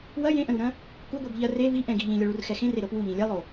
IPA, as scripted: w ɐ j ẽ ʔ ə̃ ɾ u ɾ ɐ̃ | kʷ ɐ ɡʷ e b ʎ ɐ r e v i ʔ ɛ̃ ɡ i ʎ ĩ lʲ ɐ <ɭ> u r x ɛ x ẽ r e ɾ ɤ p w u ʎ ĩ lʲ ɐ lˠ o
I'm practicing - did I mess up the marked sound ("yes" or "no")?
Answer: no